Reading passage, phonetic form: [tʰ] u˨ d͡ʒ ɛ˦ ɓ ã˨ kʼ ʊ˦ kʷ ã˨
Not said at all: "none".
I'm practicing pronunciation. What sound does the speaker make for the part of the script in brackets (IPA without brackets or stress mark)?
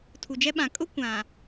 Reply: tʰ